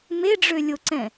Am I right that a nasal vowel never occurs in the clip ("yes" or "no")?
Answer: no